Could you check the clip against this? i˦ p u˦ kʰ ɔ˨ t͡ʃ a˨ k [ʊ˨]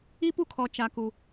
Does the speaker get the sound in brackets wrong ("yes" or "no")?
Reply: yes